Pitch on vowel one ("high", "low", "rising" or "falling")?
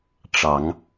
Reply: rising